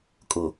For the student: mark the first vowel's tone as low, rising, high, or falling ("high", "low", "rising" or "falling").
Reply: low